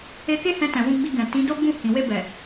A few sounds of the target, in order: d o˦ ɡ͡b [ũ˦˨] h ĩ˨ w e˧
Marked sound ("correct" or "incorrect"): correct